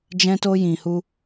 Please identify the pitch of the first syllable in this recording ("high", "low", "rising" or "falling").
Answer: high